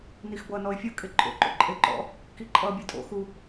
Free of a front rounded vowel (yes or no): yes